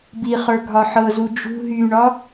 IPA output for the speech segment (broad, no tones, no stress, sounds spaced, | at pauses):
b i χ ə˞ ɡʱ ɒ ħ ɤ z u d͡ʒ ṳ ɦ y ɳ ɒ